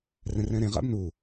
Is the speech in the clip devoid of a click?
yes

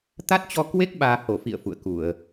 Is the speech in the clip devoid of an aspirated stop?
yes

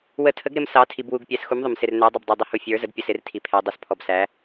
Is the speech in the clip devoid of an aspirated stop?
no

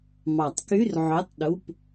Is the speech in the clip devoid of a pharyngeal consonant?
no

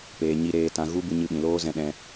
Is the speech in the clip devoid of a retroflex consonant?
yes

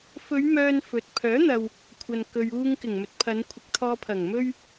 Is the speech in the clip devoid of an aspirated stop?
no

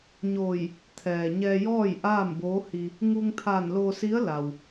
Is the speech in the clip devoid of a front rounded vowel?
yes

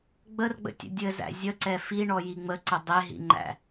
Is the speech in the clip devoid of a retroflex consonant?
no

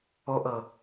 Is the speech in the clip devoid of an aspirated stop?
yes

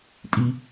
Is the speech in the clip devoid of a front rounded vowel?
yes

